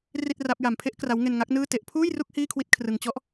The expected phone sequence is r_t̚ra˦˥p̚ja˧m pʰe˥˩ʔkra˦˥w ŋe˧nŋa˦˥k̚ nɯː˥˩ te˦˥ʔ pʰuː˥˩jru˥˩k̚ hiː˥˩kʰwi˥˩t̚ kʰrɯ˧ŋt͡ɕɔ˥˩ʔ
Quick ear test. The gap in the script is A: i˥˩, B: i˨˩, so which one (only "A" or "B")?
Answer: A